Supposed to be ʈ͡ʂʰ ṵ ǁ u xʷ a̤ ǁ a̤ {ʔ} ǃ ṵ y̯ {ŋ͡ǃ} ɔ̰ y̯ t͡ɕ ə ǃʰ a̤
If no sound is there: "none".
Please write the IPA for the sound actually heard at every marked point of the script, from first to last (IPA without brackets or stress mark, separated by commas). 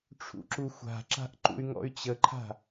ʔ, ŋ